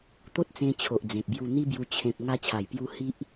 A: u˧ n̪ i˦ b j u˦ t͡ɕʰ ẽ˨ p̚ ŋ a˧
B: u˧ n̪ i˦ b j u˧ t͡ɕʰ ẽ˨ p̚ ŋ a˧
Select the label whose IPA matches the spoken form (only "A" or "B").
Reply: B